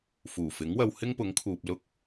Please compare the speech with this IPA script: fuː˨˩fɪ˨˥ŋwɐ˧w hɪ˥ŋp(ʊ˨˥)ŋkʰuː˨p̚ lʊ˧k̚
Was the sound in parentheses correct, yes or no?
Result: yes